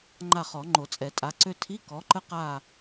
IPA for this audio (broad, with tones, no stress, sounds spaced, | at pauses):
ŋ͡ǃ a˦˨ χ ɔ˨˩˦ ŋ͡ǃ o˨˩˦ t͡sʼ ɛ˨˩˦ tʼ a˨˥ ǀ ø˥ tʰ i˧˥˧ k ɔ˨˥ ǃ ə˥ q a˦˨